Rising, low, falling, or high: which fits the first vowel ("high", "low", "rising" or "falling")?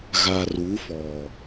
low